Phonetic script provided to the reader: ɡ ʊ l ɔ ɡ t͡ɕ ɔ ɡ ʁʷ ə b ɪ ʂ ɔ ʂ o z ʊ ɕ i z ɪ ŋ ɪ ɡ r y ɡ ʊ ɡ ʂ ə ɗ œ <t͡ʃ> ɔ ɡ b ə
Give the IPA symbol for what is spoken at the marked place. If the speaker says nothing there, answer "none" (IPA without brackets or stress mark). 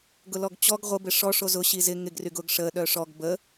ʂ